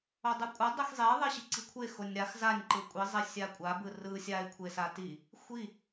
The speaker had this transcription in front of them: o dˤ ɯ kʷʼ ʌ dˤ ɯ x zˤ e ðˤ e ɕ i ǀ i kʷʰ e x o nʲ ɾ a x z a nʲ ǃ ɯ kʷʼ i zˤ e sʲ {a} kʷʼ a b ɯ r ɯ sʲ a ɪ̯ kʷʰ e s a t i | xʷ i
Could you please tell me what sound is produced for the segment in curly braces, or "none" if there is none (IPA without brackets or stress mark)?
a